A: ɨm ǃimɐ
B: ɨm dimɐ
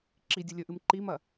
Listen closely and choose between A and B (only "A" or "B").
A